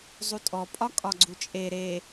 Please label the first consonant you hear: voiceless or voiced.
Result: voiced